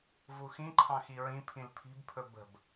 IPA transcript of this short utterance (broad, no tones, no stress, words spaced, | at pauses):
vuxĩǃʰɑ̃ xiɹĩpʰĩl pʰi̤bpʰɵ bə̤b